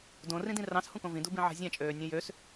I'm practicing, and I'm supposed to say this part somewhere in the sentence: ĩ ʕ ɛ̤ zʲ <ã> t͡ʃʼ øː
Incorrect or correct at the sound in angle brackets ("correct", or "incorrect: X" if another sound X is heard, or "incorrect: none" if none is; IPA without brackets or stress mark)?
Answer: correct